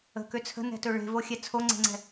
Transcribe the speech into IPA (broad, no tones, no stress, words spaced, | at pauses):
ə̤kø t͡sʰə̤nɛ̤tɵ ɭe̤voxʲɛ t͡sʰoŋ͡ǀe̤ŋ͡ǀɛ̤